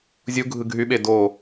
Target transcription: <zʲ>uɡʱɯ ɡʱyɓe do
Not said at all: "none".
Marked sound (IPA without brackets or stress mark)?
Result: zʲ